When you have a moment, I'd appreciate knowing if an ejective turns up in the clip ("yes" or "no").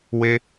no